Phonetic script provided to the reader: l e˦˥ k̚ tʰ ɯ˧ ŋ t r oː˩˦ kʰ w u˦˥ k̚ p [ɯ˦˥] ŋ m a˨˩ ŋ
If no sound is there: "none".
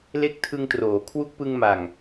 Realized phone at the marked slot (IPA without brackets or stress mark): ɯ˧